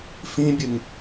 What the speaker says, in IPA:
f ĩ bʲ ɨ ŋ

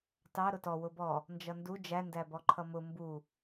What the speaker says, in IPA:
t ɑ ɾ ʊ t ɔ w ʊ b ɔ | n d͡ʒ ʌ n d u d͡ʒ æ n d æ b ɔ ǃʰ ʌ m ʊ m b u

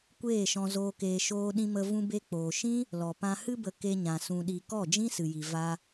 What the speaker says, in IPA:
kʷ eː˦˨ ʃ ɔ̃˧ z oː˧ k eː˧ ʃ oː˧ ɗ ĩ˧ m ə˧ v ũ˧ b e˧ k͡p oː˨ ʃ ĩ˦ | l ɔ˨ p ã˨ h ɨ˧ b ə˨ k e˧ ɲ ã˨ s ũ˨ ɗ i˨ k ɔ˦˨ d͡ʒ ĩ˦ s ɨ˨ j i˨ v a˧

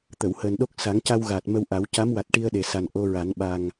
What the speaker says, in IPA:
t̪ ə˨˩˨ w h əː˨˩ n ɗ o˦˥ k̚ s a˨˩˦ ŋ c a˧ w ɣ aː˨˩ t̚ m ə˧ w ʔ a˨˩˦ w c a˧˥ m w a˨˩ t̚ ʈ i˧ ə̯ ɗ e˨˩ s a˨˩ n ʔ o˧ ɹ a˨˩˦ n ɓ a˨˩ ŋ

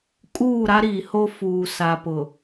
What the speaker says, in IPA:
kʼ uː˦˨ ɾ a˦ ɾ iː˨ h o˦ f uː˨ s a˨ p ʊ˨

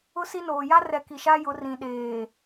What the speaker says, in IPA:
ʊ˦ s i˦ n oː˨ j a˦ r ɛ˨ k i˨ ʃ a˦ j ʊ˨˦ r ĩ˨ ɗ eː˨

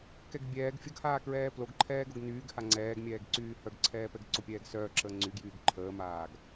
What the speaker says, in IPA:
k ɛ ɡ bʲ ɛː ɡ fʲ ə ɡ h aː k ɹ ɛː p l o ɡ ǃʰ ɛː ɡ o ɡ n yː ɡ h a ŋ͡ǀ ɛː ɡ mʲ ɛː ɡ ǀ yː h œ ɡ ǀʰ ɛː p ɛ ɡ ǀ o pʲ ɛː ɡ s œː ǁʰ əː ŋ͡ǀ y ɡ j yː ɡ ǃʰ əː m aː ɡ

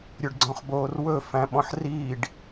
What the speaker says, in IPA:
ɾʲ ɵ ɖ ɡ͡ǀ ɔ̃ χ b oː r w ɵ f æ̃ ɓ ɔ̃ ħ r iː ɖ

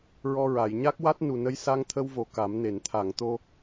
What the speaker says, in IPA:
ɹ ɔ˧ ɹ a˨˩˨ j ɲ a˦˥ k̚ w a˦˥ t̚ n u˨˩ n ə˧ j s a˧ ŋ t̪ʰ ə˧ w v o˨˩ k a˨˩˦ m n e˨˩˨ n t̪ʰ a˨˩˨ ŋ t̪ o˧

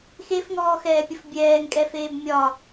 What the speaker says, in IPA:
x e f ŋ ɔː x ɛː pʲ ə f bʲ ɛː ŋ kʼ ɛ f eː b mʲ ɒ

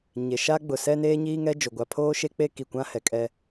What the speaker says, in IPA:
ɲ e˨ ʃ a˦ ɡ͡b ʊ˨ s ɛ˦ n eː˦ ɲ iː˦ ŋ ɛ˦ d͡ʒ o˨ ɡʷ a˨ pʰ oː˦ ʃ e˦ k͡p e˦ k i˨ kʷ ã˦ h ɛ˨ kʼ ɛ˦

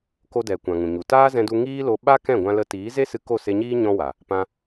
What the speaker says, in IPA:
k o˧ d ɛ˨ kʷ ã˨ ŋ ũ˨ ɲ u˨ t aː˦ z ɛ̃˧ d u˧ ŋ iː˦ l o˧ ɓ a˦ k ɛ̃˦˨ ɡʷ ã˧ l ə˧ t iː˨˦ z e˦ s ɨ˧ k o˦˨ s e˧ ɲ iː˦ ɲ ɔ̃˦ w a˨ | p ã˧

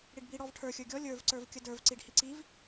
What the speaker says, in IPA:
ɽ i ɖ b i ɽ ɔ v ʈʰ ə˞ xʲ ə˞ ɡʲ ɔ lʲ ə˞ v ǀ ə˞ v kʲ ə d ə˞ v ǀ i ɖ h i ǀ i v

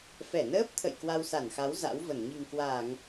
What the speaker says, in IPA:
f ɛ˧˩ n əː˦˥ p̚ t̪ʰ ə̰˧˨ j k w a˧ w s a˧˩ n x a˨˦ w z a̰˧˥ w v ə˧˩ n ɲ i̤˨˩ ŋ k w aː˧˩˨ ŋ

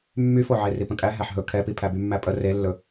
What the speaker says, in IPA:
mː y f o ʕ e r i p ə̃ kʼ æ ɦ æ ħ ɦ ɵ kʰ ɛ p i pʰ æ b y mː æ pʼ ə r e lː ɵ

